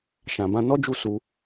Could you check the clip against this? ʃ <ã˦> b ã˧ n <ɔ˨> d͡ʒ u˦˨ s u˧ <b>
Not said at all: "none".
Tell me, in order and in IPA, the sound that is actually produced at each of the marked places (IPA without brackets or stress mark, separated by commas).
ã˨, ɔ˦, none